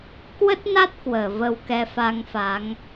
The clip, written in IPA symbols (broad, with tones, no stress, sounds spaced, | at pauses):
k w ə˦˥ t̚ n a˦˥ t̚ k w əː˧˩ v ə˧ w k ɛ˧ f a˧ ŋ f a˨˦ ŋ